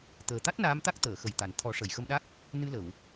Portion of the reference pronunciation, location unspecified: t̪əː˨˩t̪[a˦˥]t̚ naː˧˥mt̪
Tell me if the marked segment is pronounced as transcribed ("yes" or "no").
yes